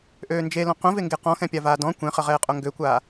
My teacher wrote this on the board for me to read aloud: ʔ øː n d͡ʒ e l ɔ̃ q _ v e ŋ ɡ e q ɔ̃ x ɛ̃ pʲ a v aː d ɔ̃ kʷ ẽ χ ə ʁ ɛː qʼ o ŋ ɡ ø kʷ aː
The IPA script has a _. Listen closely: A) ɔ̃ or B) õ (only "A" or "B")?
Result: B